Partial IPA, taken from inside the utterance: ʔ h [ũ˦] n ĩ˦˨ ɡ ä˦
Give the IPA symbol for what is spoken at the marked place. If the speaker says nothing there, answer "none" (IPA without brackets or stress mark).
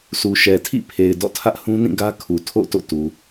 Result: ũ˦